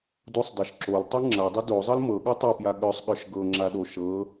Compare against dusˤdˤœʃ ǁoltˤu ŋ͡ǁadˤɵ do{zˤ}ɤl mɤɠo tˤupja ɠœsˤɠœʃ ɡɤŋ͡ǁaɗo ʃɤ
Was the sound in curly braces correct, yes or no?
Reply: yes